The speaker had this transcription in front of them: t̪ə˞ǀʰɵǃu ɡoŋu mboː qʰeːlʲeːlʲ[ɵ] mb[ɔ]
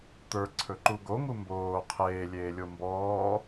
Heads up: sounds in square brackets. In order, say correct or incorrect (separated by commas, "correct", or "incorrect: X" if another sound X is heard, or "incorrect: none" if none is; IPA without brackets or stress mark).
incorrect: o, incorrect: ɔː